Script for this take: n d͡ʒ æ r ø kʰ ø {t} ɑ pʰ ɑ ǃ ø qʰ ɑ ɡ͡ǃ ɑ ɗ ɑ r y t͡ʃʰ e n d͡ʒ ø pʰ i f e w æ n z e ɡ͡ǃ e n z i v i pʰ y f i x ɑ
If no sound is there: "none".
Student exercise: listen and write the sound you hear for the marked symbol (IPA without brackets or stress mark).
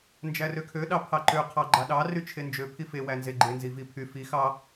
ɗ